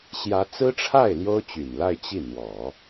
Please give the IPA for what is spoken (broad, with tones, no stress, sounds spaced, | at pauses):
ɕ j ä˧˥ t͡s ɹ̩˥ ʈ͡ʂʰ a˥˩ ɪ̯ l j o˥ ʊ̯ t͡ɕ y˨˩ n l a˥˧ ɪ̯ t͡ɕ i˥˩ n̪ w ɔ˨˩˦